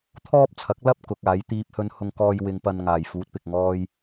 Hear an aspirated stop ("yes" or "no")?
yes